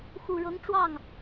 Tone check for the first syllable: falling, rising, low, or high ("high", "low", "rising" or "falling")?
low